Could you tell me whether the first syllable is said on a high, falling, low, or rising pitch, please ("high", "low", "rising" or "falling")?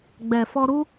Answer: low